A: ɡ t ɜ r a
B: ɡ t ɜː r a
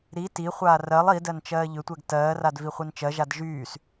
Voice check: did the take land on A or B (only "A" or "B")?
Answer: B